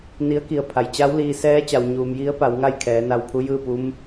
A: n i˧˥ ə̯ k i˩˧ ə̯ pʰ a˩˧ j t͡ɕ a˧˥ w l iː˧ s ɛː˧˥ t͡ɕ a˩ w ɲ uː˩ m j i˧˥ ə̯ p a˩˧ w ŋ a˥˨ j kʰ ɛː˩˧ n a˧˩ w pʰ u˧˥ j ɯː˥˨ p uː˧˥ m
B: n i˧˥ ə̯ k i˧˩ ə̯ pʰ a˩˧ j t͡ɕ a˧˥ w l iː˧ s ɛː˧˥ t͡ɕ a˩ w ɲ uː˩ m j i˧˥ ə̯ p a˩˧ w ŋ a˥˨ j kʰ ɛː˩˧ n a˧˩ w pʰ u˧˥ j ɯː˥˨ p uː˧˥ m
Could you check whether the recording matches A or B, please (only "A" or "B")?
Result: B